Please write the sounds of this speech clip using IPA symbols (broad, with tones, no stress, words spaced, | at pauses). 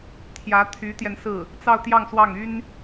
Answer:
t̪ʰjä˧˥t̪ʰy˧˥t̪jɛ˧nsɹ̩˥˩ | t͡sɑ˥˧ʊ̯t̪jɑ˥˧ŋswɑ˥˩ŋ y˥n